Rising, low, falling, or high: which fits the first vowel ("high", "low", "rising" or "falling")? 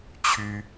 high